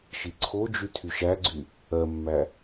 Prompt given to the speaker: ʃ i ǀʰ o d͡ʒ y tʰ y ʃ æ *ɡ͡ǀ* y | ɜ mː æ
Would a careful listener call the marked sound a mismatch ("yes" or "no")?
no